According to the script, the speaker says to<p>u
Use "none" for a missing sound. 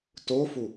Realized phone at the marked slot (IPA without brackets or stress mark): f